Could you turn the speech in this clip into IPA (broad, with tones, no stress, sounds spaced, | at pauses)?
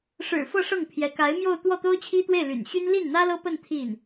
ʂ ɻ̩˨˩ f ɤ˥˧ ʂ ɤ˥˩ ŋ pʰ j ɛ˧˥ k a˧˥ ɪ̯ m j o˥˧ ʊ̯ t̪ w ɔ˥˩ t̪ o˥ ʊ̯ t͡ɕʰ i˥ t̪ w e˥˩ ɪ̯ l y̰˨˩ n ɕ y˥ n l i˥˩ n n̪ ä˥ l ɤ˥ p ə˥˧ n t̪ʰ i˥˩ n